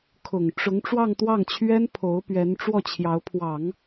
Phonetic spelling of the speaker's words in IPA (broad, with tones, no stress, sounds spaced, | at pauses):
kʰ ʊ˨˩ ŋ ʈ͡ʂ ʊ˧˥ ŋ ʈ͡ʂ w ɑ˥˧ ŋ t̪ w ɑ˥˩ ŋ t͡ɕʰ ɥ ɛ˥ n pʰ o˧˥ ʊ̯ p ɥ ɛ˧˥ n ʈ͡ʂ w ɔ˥˩ t͡ɕʰ j ɑ˧˥ ʊ̯ pʰ w ɑ˨˩˦ ŋ